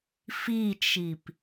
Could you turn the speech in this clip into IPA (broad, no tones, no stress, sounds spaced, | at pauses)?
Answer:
f i t͡ʃ i p